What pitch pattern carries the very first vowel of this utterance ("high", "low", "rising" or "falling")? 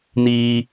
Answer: low